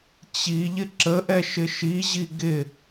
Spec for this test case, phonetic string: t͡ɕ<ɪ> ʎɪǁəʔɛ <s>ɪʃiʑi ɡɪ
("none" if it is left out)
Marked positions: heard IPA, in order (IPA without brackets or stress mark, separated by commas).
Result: i, ʃ